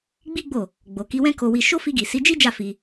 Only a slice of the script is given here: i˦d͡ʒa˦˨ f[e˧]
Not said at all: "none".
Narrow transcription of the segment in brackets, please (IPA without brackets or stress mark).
i˧